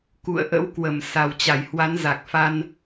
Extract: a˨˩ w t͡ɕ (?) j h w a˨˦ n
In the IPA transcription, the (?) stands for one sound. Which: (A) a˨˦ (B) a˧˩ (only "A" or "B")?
B